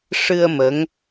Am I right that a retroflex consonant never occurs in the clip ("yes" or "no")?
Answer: no